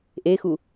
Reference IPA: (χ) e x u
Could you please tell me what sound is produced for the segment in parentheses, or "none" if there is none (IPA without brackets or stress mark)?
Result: ʔ